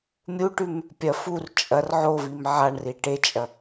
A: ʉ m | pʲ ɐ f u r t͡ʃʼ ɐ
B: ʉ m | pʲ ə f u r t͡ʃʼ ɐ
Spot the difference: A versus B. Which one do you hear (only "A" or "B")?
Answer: A